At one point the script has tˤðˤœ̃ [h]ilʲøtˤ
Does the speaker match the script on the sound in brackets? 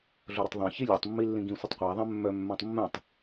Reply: no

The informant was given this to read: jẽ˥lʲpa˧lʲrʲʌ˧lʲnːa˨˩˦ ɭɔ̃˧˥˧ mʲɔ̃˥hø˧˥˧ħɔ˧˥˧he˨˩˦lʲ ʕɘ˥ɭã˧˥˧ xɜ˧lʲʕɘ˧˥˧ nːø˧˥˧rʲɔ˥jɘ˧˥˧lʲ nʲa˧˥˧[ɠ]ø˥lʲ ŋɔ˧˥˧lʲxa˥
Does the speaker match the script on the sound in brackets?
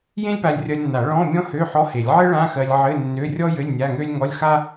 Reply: no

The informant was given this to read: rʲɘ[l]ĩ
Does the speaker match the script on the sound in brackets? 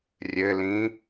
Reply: yes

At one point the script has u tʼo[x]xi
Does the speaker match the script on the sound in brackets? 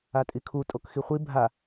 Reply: no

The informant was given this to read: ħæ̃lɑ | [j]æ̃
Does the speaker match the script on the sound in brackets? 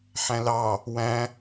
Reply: no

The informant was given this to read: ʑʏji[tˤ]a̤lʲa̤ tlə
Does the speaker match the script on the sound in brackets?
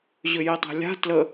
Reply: yes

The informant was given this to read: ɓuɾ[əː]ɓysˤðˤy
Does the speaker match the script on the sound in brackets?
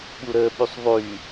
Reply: yes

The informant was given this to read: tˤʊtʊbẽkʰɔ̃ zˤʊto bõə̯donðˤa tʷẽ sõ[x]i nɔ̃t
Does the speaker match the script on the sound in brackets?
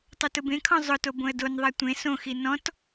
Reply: yes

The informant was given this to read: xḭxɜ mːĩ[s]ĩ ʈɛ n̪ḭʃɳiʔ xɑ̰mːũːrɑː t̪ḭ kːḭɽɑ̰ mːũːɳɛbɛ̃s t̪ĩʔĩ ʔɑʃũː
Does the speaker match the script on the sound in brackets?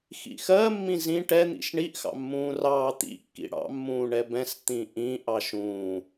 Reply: no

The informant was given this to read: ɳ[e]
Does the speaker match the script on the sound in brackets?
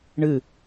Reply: no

